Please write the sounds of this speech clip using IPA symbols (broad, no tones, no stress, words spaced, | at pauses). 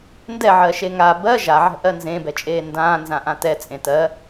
ndɛʕɜʃe ŋa bɜ ʒaʕɛ̤ʔɜ nzẽbɛt͡ʃʼeː ndãːnzãʔã tɛ t͡sʼẽtɜ